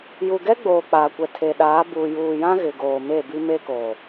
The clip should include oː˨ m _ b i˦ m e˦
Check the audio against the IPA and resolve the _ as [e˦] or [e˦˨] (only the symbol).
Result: e˦˨